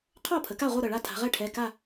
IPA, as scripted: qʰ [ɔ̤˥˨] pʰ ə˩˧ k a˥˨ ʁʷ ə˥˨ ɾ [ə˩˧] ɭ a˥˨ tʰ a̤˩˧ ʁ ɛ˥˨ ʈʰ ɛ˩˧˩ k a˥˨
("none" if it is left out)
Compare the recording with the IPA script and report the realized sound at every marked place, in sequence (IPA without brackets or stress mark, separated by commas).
ɔ˥˨, ə˧˩